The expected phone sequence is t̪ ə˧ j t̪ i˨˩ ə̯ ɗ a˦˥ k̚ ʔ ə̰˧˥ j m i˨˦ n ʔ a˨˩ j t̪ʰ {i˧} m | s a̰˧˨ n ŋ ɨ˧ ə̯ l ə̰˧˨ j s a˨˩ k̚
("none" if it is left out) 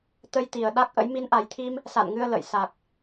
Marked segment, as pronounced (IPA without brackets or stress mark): i˧